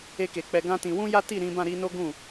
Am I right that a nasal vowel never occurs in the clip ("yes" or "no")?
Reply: no